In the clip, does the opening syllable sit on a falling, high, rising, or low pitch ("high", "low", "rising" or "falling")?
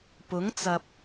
rising